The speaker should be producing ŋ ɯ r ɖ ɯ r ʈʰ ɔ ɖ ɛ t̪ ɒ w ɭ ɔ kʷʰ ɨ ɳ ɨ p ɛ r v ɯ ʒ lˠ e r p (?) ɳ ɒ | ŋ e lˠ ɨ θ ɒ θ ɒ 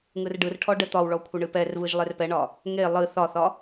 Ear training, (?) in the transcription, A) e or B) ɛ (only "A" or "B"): B